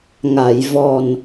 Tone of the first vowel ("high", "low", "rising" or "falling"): low